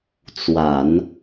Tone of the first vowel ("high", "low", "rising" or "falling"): low